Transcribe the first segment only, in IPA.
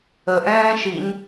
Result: ə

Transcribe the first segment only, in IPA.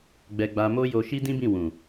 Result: ɡ͡b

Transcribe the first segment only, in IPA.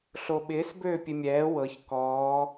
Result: ɬ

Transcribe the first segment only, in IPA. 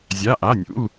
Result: zʲ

